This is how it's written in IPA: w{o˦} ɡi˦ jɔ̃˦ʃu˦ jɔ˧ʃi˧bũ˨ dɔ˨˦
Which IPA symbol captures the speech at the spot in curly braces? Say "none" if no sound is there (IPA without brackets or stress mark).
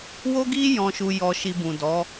o˦